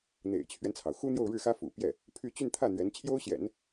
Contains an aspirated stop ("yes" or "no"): yes